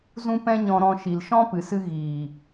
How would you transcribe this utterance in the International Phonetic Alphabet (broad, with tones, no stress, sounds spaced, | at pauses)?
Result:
z ũ˦ p ɛ̃˦ ɲ ɔ̃˧ ɾ ɔ̃˧ ʃ i˨ l ʃ ɔ̃˦ p ɨ˨ s ɨ˧ ɣ iː˨